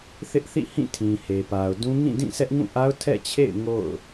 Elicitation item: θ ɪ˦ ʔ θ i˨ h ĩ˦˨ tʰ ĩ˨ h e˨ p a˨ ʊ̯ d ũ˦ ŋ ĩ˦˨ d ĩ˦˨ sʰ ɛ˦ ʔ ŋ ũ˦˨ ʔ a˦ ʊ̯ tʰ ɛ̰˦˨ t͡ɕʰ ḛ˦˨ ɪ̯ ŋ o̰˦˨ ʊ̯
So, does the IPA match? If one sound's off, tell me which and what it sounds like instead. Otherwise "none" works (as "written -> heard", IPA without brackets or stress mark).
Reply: i˨ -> ḭ˦˨